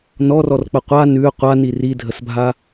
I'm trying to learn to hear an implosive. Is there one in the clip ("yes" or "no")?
no